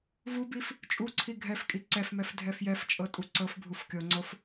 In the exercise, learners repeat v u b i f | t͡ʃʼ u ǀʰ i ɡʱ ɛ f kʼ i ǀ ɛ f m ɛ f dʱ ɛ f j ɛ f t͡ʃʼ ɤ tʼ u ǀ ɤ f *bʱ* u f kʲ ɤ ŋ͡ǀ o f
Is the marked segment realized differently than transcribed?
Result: no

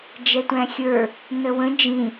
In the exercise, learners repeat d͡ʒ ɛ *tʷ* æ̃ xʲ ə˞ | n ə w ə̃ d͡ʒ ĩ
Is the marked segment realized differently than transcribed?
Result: no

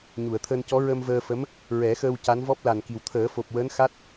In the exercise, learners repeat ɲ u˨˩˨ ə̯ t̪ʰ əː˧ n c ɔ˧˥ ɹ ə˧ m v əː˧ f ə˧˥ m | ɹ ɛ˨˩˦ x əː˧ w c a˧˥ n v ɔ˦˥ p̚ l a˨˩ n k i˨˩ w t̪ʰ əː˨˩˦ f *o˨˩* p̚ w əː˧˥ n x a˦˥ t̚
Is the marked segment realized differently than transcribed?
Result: no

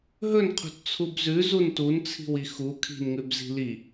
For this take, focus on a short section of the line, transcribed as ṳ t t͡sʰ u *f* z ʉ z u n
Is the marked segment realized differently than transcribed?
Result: yes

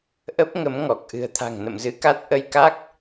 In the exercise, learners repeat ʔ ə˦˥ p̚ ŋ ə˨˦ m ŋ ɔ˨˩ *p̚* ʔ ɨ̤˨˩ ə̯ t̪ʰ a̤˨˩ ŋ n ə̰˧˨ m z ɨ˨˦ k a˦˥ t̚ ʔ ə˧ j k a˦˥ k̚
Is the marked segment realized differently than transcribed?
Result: yes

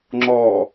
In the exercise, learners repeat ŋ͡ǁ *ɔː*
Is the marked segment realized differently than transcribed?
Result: no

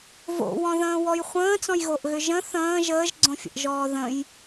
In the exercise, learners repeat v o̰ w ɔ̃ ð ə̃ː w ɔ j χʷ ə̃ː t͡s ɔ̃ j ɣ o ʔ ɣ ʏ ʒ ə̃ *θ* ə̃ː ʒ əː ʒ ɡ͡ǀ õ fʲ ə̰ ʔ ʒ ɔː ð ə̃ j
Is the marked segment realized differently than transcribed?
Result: no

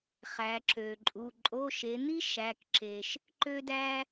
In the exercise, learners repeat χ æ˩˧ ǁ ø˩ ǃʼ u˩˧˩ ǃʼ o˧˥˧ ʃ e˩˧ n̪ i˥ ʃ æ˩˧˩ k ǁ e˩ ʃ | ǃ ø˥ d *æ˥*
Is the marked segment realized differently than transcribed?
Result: no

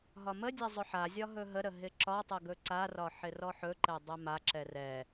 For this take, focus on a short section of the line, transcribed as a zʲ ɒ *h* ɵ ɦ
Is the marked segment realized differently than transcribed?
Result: yes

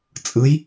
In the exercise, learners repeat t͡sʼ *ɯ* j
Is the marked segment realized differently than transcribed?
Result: no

